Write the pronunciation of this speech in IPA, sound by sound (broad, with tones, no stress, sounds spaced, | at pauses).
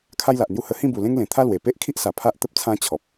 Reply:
kʰ a˦ j l a˨ ʔ n̪ j u˦ h ə˧ h ĩ˥˧ b u˨˩ l ẽ˦ ŋ l ẽ˨˩ t̪ʰ a˦ l w e˨˩ p e˦ ʔ kʰ i˦ ʔ s a˨˩ pʰ a˦ ʔ t̪ ə˦ p̚ t͡sʰ ã˦ t͡ɕʰ ɔ˨ p̚